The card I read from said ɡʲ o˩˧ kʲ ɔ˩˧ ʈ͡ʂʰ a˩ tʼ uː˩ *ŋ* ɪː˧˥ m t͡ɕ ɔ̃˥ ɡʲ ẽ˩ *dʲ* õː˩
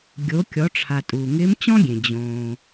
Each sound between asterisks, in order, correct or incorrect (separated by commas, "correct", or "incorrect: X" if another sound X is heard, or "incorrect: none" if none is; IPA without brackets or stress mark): correct, incorrect: d͡ʑ